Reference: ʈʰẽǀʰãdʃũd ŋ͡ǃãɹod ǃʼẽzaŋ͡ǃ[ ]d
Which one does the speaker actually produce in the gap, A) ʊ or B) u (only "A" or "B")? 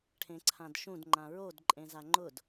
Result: A